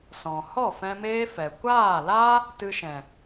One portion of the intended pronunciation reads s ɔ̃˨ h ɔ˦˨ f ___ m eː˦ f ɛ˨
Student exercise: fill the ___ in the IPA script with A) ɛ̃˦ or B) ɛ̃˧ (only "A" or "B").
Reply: B